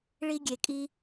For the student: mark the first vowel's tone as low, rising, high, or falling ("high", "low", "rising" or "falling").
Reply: high